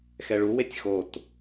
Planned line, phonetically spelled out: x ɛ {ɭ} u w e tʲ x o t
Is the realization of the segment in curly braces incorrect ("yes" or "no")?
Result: no